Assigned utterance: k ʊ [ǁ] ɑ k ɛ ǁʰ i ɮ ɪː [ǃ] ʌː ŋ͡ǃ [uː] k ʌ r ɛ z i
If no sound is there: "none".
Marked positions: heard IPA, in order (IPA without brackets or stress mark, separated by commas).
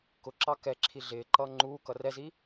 ǁ, ǃ, uː